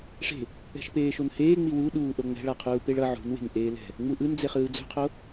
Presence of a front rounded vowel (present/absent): absent